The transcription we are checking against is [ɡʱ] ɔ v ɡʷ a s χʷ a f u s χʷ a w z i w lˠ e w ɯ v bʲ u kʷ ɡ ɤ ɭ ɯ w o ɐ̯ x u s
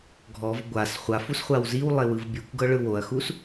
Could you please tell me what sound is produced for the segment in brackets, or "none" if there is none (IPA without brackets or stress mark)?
ɡʱ